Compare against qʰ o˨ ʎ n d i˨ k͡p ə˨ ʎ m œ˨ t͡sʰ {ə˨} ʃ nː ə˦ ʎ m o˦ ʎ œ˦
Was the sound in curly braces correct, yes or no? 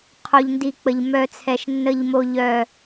no